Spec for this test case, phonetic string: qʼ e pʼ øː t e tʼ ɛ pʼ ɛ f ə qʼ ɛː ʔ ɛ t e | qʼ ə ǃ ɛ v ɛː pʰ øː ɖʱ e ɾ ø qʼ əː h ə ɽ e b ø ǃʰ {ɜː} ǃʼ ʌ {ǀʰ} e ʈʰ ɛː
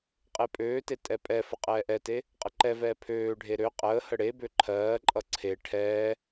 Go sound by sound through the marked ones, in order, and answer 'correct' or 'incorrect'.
correct, correct

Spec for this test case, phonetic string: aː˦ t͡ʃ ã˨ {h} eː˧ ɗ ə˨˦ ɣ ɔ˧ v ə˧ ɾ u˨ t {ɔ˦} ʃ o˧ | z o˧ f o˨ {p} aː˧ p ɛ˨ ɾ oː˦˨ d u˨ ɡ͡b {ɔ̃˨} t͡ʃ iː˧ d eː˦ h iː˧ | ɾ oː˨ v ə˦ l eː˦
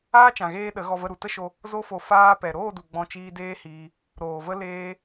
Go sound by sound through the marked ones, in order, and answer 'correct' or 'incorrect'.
incorrect: ɣ, incorrect: ə˦, incorrect: f, incorrect: ɔ̃˧

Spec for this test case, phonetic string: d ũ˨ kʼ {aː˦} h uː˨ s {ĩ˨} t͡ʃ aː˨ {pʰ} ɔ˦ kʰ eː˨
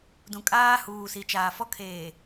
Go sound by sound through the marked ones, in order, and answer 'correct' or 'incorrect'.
correct, incorrect: i˨, incorrect: f

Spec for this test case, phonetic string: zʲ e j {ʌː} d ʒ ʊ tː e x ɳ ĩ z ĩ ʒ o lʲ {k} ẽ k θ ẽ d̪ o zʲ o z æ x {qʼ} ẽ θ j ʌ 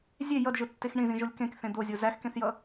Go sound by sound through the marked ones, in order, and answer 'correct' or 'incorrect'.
incorrect: ʌ, correct, incorrect: k

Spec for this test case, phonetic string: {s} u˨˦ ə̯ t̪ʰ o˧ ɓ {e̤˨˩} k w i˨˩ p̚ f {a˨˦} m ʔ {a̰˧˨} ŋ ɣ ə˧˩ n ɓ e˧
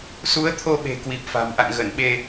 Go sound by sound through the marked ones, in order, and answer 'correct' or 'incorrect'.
correct, correct, incorrect: a̤˨˩, correct

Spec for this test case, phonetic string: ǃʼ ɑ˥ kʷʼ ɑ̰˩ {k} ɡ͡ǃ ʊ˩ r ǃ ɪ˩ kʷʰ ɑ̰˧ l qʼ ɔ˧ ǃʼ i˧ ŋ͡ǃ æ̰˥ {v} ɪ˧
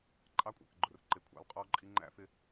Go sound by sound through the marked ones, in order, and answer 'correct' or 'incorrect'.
correct, incorrect: f

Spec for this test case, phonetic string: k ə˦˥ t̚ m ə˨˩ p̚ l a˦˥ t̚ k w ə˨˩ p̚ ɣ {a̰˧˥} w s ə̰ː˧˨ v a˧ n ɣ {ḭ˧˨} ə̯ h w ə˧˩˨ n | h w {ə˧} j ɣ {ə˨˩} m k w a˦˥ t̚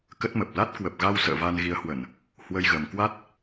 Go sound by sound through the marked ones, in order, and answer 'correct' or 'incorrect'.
incorrect: a˧, incorrect: i˨˦, correct, correct

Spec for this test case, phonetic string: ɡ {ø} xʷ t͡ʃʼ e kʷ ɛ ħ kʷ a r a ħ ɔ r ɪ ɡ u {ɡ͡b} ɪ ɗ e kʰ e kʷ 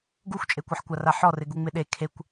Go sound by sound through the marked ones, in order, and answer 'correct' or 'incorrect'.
incorrect: u, incorrect: ŋ͡m

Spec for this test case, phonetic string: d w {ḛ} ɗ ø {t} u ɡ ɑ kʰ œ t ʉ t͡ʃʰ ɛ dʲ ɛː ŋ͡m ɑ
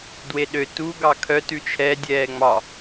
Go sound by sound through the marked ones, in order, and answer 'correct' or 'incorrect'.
incorrect: e, correct

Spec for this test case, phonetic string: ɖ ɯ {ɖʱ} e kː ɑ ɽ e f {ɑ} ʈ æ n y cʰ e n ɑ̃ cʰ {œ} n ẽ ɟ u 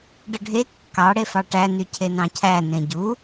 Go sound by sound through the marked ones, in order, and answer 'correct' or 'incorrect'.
correct, correct, incorrect: æ

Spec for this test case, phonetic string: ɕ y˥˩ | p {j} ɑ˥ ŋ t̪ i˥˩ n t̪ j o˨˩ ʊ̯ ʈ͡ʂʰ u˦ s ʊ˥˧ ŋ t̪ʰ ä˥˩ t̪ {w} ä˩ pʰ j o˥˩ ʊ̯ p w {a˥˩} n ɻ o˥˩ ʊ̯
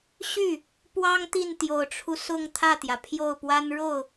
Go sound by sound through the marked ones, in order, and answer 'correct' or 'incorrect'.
incorrect: w, incorrect: j, incorrect: a˥

